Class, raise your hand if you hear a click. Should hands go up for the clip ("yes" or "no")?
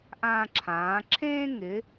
yes